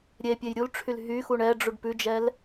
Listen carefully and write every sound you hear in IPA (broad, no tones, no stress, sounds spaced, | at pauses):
ɾʲ e pʲ e j ɾʲ u l ʈ͡ʂʰ y l ɦ y x u ɳ ɛ ɖ͡ʐ u ɖ p ʉ d͡ʒ ɛ l